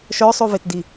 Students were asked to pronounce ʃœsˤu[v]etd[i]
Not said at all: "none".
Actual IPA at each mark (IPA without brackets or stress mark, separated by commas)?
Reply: v, i